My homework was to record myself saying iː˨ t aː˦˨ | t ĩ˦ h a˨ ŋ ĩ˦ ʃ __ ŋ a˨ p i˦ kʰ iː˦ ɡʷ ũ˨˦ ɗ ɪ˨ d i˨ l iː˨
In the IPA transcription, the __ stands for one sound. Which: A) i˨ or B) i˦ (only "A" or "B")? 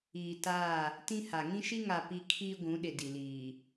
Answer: B